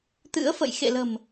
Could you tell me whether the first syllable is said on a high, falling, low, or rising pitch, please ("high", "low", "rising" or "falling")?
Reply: rising